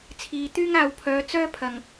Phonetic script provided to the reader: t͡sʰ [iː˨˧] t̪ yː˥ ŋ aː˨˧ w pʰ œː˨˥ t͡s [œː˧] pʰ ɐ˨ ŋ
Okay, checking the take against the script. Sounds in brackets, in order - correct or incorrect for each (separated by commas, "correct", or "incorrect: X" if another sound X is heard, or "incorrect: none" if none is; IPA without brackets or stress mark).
correct, incorrect: œː˥